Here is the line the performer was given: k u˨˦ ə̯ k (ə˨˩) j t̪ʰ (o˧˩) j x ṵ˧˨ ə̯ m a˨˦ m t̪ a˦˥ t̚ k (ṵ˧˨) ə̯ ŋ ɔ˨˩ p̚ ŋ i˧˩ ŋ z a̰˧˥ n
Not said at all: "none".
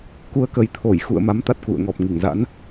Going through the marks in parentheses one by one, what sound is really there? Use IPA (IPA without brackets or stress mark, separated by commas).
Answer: ə˨˩, o˧˩, ṵ˧˨